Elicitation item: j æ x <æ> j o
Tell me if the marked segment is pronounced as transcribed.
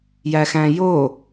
no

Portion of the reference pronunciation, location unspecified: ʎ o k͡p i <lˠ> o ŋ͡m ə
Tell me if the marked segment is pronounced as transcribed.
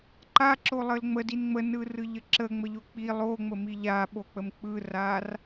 yes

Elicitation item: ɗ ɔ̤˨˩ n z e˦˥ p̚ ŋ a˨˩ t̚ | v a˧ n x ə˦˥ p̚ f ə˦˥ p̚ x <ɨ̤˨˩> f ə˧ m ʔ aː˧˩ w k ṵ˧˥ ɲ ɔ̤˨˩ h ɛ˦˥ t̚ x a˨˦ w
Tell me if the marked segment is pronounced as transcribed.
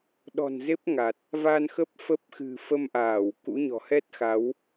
yes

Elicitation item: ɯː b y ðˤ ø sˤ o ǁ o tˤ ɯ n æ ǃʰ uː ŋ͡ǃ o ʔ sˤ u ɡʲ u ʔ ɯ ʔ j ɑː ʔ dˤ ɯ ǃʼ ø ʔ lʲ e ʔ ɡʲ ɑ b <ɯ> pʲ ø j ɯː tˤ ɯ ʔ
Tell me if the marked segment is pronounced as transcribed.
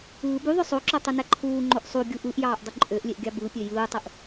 yes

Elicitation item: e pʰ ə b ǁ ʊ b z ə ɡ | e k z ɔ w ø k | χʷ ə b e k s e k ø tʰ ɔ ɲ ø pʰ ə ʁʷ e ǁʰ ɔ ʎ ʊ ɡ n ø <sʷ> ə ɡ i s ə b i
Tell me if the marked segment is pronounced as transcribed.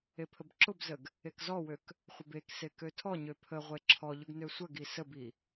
yes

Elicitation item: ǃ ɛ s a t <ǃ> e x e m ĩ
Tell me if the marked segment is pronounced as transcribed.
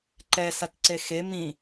no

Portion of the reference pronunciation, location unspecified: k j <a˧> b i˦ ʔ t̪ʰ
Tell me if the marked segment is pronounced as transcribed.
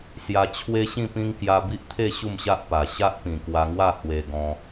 yes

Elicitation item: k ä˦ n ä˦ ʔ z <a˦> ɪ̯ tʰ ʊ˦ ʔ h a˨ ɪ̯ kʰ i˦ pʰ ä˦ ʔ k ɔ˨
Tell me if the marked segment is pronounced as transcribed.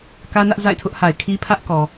no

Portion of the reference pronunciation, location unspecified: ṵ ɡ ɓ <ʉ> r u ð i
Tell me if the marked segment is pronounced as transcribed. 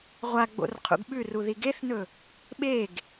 yes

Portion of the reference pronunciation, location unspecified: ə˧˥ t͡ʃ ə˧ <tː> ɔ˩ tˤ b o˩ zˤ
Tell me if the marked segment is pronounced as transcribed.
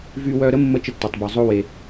yes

